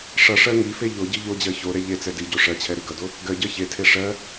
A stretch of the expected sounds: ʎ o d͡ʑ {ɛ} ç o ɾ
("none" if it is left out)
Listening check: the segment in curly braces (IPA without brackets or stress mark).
ɜ